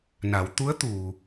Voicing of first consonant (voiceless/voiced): voiced